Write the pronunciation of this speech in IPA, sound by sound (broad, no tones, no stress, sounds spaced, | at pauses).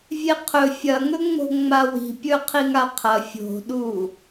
vʲ e qʰ ɵ fʲ ɐ ŋ ɵ ŋ͡m o̤ ŋ͡m a w i̤ pʲ ɵ qʰ i ŋ a qʰ ɐ fʲ o̤ ɗ u